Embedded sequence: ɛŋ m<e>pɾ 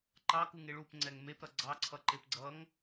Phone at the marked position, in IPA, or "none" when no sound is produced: e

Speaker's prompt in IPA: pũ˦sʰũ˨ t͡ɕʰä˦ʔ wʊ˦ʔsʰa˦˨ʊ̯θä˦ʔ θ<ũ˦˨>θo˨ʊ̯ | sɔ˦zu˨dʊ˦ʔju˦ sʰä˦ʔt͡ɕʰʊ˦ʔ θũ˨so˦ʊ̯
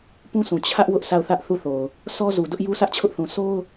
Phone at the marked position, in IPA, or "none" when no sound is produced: u˦˨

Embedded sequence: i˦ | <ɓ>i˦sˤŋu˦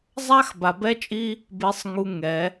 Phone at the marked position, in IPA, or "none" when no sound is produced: b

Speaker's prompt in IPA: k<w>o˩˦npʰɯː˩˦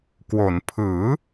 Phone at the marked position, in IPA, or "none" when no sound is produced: w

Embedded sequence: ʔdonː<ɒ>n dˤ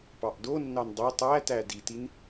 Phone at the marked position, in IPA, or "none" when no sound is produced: ɑ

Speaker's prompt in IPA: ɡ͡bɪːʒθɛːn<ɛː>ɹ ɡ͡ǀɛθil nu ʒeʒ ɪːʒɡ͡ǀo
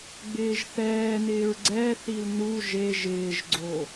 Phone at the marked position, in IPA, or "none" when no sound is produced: ɪː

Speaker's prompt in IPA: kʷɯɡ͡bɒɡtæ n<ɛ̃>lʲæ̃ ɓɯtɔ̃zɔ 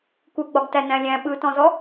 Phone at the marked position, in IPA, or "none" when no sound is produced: æ̃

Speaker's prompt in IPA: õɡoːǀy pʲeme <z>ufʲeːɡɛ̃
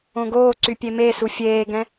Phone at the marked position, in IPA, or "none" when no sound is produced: s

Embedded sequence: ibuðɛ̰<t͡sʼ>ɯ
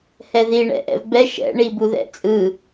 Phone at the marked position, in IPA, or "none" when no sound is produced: t͡sʼ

